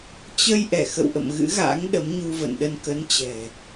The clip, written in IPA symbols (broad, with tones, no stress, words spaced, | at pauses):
t͡ɕə˧j ʔɛ˧˩xə̰˧˨wʔə̰˧˨m ɣɨ̰˧˥ɣa̰ː˧˥ŋ ɗə˨˦mɲu˧və̰˧˨nɗə˧n kə˨˦nt͡ɕɛ̤˨˩